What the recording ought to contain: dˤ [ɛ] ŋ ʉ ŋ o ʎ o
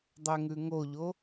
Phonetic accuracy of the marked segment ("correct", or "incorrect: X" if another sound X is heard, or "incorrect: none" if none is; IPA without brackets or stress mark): correct